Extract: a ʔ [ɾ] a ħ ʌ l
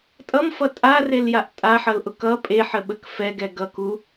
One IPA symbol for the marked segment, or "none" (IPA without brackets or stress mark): tʼ